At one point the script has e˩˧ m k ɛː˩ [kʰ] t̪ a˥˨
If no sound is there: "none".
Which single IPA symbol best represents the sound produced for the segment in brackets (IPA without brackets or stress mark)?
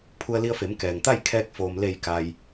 ŋ